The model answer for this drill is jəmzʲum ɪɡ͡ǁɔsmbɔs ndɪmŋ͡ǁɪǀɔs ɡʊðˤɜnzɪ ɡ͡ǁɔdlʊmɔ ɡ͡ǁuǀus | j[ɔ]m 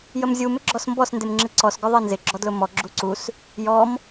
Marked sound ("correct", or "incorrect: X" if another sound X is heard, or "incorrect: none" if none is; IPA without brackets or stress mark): correct